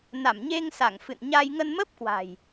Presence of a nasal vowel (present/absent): absent